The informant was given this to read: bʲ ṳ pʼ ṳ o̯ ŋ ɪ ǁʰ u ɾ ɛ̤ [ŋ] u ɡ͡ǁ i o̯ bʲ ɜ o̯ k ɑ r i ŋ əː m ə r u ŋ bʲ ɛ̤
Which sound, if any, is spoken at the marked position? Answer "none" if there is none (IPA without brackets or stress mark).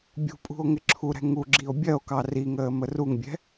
ŋ